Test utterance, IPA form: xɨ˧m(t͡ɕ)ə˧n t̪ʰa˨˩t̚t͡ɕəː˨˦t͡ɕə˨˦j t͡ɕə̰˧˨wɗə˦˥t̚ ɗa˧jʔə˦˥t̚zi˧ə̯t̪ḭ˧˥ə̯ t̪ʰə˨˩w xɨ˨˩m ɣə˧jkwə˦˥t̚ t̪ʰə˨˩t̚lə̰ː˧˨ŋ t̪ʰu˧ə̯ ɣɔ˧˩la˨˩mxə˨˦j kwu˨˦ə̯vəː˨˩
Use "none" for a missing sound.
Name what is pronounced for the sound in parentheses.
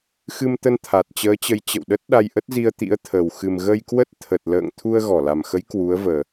t̪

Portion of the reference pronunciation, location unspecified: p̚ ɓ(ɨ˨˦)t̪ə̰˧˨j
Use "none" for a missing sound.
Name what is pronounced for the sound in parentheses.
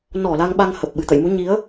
ɨ˨˩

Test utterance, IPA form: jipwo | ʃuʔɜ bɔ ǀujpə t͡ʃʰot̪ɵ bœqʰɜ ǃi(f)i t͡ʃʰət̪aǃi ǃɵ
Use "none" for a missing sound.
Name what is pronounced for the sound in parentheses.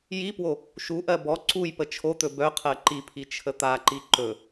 pʰ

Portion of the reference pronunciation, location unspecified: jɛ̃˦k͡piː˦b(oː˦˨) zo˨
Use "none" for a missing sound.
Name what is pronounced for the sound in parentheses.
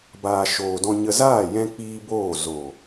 oː˦˨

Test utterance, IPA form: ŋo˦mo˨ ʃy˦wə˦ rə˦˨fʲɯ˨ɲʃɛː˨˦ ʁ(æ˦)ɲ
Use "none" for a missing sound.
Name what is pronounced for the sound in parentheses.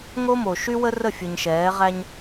æ˦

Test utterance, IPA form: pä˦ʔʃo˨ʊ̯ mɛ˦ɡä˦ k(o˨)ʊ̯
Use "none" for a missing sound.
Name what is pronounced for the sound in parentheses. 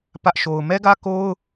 o˦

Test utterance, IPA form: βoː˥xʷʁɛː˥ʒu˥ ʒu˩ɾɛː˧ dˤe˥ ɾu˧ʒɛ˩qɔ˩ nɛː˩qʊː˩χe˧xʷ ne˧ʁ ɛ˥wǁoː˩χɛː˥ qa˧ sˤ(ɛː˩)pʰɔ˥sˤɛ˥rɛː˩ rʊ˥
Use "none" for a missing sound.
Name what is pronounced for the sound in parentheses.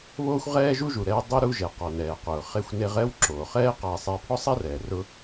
ɛː˧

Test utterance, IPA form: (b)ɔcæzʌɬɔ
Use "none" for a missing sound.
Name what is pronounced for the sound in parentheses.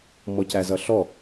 m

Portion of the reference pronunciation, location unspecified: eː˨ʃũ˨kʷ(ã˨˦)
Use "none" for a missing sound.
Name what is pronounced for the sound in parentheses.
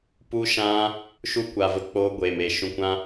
ã˧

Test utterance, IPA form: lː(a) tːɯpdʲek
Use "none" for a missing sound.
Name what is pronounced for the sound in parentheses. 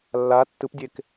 a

